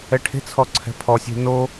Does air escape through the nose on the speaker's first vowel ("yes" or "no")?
no